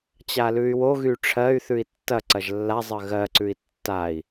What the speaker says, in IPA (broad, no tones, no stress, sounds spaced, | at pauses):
t͡ɕ a l ʉ y̯ w o ɣ y ʈ͡ʂʰ ɜ y̯ θ ʉ i̯ tː ɐ ǀ ɐ ʒ lː a zˤ ɜ ɣ ɜ ǀ ʉ i̯ tː a i̯